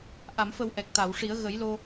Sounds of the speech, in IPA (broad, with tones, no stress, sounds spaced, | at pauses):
ʔ a˨˩˨ m f ə˨˩ w ʔ ɛ˨˩ k̚ t̪ a˨˩˨ w ʂ i˨˩˦ ə̯ ɣ ə˨˩˦ j l o˧